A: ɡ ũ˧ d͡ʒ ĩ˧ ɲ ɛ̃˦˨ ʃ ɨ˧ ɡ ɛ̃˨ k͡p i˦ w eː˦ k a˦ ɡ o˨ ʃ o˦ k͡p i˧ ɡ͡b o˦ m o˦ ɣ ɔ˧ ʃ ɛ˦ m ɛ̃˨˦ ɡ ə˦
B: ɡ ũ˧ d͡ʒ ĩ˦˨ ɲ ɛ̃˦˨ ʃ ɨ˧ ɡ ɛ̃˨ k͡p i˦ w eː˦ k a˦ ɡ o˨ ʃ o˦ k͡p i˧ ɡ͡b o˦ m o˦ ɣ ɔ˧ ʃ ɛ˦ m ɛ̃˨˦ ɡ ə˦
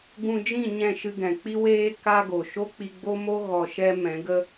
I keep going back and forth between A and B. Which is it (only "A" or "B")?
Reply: B